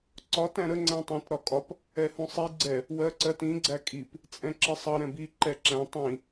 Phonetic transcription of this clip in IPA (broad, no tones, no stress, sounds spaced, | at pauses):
ǀ ɒ t æ̃ ɾ ə ŋ͡ǀ æ̃ tˤ ɛ̃ t ɾ ɒ kʼ ɒ p | ɛ h ũ sˤ i ɡ͡ǀ ɛ | w ɜ ǀ ɜ t ĩ ɡ͡ǀ æ kʼ i p | t͡sʼ ɛ̃ ǁ ɪ sˤ ʌ ɾ ɛ̃ b i ǃ ɛ ǁ æ̃ tˤ ĩ